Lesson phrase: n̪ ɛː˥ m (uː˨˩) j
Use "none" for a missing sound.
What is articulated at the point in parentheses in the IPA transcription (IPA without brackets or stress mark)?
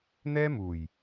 uː˨˩